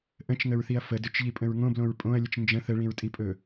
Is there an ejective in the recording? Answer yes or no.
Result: yes